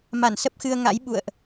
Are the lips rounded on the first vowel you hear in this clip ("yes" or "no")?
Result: no